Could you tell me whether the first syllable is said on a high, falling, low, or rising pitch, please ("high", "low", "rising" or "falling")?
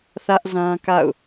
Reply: high